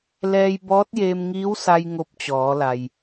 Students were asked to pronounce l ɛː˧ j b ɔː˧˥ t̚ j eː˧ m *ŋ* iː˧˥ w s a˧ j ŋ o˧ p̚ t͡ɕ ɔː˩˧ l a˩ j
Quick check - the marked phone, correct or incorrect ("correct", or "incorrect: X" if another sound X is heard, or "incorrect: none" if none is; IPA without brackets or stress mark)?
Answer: correct